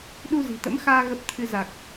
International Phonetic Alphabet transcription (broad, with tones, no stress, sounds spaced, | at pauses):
ɗ u˧ z i̤˨˩ t̪ ə̰˧˥ m x aː˧ ɣ ə˦˥ p̚ t̪ʰ ɨ˧ z a˨˩ k̚